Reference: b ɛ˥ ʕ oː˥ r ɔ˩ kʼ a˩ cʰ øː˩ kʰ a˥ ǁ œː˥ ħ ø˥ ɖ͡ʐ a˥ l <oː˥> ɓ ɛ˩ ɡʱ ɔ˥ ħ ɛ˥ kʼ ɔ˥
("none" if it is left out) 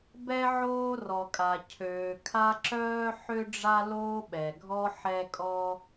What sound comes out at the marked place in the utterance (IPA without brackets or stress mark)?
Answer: oː˥